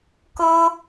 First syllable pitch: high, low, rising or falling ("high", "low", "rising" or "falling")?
high